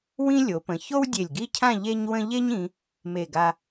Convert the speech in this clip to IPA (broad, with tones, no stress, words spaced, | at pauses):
wĩ˥ lʲo˩˧pə̃˩˧ ço˥wdʲe˧˩lʲɡi˥˧cʰã˥˧ ʎe˥ɲwə̃˥ ʎe˥ɲĩ˩˧ | me˧˩ɡa˧